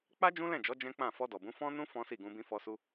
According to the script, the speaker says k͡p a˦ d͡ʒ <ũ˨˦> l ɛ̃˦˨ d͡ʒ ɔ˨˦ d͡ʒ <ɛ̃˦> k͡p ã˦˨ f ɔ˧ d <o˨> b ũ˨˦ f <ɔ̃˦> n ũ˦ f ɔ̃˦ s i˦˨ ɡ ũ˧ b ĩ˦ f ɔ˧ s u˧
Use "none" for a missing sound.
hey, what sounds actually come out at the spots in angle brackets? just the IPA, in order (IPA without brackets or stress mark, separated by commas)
ũ˦, ɛ̃˦, ɔ˨, ɔ̃˦